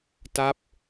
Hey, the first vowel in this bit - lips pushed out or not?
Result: no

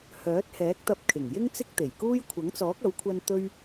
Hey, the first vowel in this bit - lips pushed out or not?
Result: yes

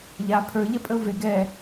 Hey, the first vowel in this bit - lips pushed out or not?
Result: no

